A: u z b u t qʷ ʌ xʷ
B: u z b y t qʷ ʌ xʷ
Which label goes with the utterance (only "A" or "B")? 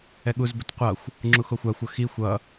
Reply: A